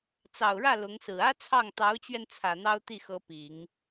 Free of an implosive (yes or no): yes